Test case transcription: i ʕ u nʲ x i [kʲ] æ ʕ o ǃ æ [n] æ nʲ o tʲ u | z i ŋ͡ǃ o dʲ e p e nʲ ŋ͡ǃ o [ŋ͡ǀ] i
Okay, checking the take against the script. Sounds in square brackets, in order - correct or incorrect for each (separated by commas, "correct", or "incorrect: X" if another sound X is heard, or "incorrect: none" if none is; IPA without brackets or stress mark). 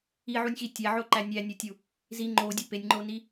incorrect: tʲ, incorrect: nʲ, incorrect: n